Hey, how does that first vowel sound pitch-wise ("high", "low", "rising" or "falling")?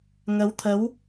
rising